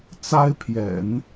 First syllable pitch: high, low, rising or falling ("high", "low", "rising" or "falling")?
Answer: high